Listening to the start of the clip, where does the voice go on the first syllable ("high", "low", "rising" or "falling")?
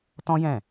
high